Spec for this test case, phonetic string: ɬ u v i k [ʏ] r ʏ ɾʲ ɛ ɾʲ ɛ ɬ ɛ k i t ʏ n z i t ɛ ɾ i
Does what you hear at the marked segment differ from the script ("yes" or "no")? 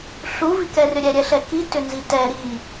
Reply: yes